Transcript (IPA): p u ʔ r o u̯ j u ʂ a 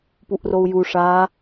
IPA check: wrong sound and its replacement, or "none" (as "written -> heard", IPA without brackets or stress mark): none